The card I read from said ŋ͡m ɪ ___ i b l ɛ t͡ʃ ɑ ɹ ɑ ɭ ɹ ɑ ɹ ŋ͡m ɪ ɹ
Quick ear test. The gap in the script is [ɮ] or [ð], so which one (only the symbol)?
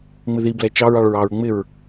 ð